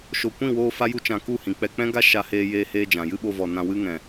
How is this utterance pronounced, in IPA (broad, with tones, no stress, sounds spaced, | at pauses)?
ʃ o˨ kʷ ĩ˦˨ w oː˧ f a˦ j u˦ t͡ʃ ã˧ k u˦˨ h ĩ˨ k͡p ɛ˧ k͡p ɛ̃˦ ɡ a˦ ʃ a˧ h eː˧ j eː˧ h eː˧ d͡ʒ ã˨ j ɨ˦ ɓ o˧ v ɔ˨ n ã˨ w ɨ˧ ŋ ɛ̃˨